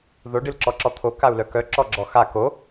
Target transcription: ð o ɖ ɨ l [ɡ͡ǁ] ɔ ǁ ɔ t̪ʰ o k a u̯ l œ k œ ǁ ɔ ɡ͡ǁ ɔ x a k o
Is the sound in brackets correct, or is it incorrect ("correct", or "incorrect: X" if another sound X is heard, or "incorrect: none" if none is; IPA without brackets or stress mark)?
incorrect: ǁ